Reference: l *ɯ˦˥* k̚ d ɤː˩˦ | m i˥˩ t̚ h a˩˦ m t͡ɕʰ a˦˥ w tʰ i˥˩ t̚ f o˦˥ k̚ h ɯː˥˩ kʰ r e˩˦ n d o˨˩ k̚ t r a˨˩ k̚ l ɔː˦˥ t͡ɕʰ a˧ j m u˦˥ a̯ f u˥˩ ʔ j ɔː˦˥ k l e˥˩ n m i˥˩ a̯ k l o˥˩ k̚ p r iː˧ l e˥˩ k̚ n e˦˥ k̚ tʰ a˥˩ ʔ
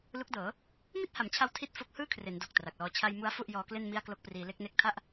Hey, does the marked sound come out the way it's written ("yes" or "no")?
no